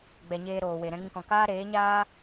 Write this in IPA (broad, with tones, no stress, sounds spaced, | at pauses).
ɡ͡b ɛ˨ ɲ eː˧ ɾ oː˨ w e˨ ɾ ɛ̃˧ ŋ ĩ˧ k ɔ̃˨ k aː˦ ɾ eː˨˦ ɲ aː˦